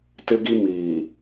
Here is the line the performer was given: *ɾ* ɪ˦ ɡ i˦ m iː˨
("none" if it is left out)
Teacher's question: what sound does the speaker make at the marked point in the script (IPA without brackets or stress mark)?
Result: t